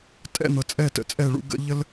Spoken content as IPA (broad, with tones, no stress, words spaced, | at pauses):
tʼɛ̰˦˨n̪ɤ˨ t͡sʼɛ˦˨tə̰˨t͡sʼɛ˦˨ɭṵ˦ ɡə̰˦ ʎə˦l